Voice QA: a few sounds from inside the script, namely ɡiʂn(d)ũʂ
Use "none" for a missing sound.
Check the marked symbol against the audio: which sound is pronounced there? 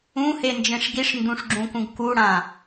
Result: d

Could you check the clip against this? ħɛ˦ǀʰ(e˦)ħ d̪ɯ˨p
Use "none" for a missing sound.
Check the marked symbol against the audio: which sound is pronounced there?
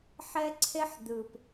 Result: e˦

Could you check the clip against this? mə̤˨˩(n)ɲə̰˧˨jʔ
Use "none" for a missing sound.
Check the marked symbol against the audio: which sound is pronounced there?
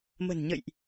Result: n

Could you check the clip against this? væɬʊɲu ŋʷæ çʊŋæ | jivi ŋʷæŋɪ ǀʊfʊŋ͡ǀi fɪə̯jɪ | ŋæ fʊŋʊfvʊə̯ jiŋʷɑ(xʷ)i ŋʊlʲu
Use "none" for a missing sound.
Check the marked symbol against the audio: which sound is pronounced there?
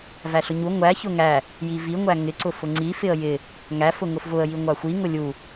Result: xʷ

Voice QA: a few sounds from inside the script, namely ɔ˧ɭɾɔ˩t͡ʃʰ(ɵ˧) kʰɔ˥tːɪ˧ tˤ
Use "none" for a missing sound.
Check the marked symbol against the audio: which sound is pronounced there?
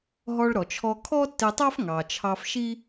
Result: ɔ˧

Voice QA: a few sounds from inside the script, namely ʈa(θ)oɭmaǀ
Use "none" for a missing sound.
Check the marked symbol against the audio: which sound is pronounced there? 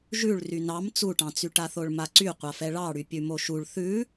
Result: θ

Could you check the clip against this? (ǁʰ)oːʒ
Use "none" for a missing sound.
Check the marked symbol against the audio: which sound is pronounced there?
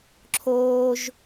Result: ǁʰ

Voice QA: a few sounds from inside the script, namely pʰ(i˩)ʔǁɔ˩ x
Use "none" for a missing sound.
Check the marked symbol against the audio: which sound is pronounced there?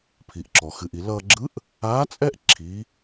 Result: i˩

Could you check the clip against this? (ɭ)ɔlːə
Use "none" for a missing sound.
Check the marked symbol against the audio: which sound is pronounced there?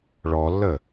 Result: ɭ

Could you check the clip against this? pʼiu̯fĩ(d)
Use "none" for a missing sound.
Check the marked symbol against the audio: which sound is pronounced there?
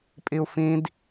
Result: d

